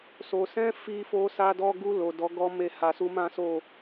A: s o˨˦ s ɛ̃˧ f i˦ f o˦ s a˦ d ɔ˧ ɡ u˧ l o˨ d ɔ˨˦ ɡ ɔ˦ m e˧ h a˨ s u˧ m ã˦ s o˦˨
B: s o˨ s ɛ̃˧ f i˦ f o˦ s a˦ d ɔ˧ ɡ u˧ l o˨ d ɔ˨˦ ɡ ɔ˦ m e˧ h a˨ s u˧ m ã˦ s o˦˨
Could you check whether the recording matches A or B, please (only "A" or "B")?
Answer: B